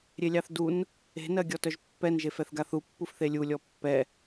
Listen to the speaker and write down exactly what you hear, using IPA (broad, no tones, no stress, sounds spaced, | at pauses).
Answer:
ɾʲ e lʲ ɑ θ d u n | e̤ n ɜ ɡʲ ɔ t œ ʒ pː ɛ n ʒ e f ɛ θ ɡ a θ u pː u f θ e lʲ u lʲ ɔ pː ɛ